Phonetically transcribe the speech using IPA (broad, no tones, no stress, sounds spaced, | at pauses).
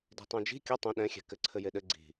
d i̤ tˤ ũ d͡ʒ i̤ kʲ ə tˤ ũ ɗ ɛ̃ xʲ ɛ̤ k ɘ ǀʰ ɘ j e ɗ ɘ ɡ͡ǀ i̤